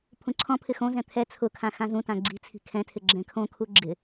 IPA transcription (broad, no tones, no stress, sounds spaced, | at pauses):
pʰ ũ ǀʰ ɔ̃ pʰ ɪ x õ z ɛ̃ t̪ʰ ɛ t͡sʰ ʊ kʰ ã x ã z ũ t ã ɡ͡ǀ i̤ t͡sʰ i̤ kʰ ɛ̃ tʰ ɪ ɡ͡ǁ ɛ̃ kʰ õ kʰ u ɡ͡ǁ ɪ